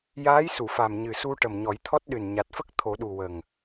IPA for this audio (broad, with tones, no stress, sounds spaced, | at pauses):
j aː˧˥ j s u˨˩˨ f a˨˩ m ɲ ɨ˨˩ s u˧ ʈ ə˨˩ m ɲ ɔ˨˩˦ j t̪ʰ ɔ˦˥ t̚ ɗ ɨ˨˩ n ɲ a˨˩ t̚ f ə˦˥ k̚ t̪ʰ o˨˩˦ ɗ u˨˩ w ə˨˩ ŋ